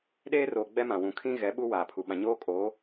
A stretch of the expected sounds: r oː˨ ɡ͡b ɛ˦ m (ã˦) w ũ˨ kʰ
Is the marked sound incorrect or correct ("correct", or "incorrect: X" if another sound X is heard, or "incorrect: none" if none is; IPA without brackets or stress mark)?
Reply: incorrect: ã˨